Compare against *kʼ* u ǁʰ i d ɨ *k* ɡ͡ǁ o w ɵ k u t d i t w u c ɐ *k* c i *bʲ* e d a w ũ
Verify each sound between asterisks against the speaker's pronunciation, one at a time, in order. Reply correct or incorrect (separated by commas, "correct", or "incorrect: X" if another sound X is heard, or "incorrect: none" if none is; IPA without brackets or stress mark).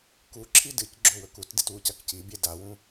incorrect: k, incorrect: c, correct, correct